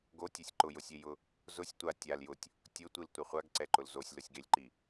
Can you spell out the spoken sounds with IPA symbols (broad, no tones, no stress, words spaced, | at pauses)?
ɡotʲesʲ ǃʊjʊsʲejʊ | zʊsʲ tʷa tʲal jʊtʲ | tʲʊtʷiltʷa χʷaɡǀɛǃʊl zosʲlʊsʲɡelʲǃi